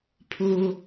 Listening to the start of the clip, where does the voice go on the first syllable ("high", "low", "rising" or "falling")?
low